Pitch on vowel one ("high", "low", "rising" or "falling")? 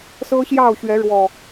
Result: high